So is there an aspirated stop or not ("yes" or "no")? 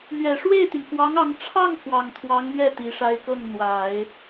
yes